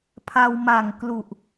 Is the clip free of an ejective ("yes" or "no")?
yes